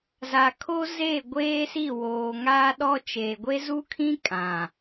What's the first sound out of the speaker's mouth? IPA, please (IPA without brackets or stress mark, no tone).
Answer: z